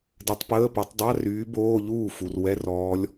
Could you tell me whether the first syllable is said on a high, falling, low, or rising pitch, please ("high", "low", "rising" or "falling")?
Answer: rising